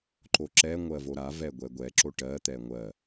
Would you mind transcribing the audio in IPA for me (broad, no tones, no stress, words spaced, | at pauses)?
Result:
ǃoǁɛ ŋʷɜvoɾa vɛɡʷɛɡʷɛ ǁoʈɜ t̪ɛŋʷɜ